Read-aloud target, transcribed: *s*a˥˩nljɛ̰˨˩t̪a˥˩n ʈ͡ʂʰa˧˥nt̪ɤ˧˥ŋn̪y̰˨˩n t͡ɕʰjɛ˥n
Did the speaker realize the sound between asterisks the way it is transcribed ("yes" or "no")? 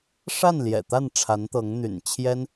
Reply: no